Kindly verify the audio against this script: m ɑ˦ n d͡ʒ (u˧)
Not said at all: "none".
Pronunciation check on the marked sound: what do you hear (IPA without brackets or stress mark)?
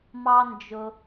ʊ˧